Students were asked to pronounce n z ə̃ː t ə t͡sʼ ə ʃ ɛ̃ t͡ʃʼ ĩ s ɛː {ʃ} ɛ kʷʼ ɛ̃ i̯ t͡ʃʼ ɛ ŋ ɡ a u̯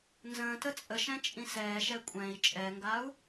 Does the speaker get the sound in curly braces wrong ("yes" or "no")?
no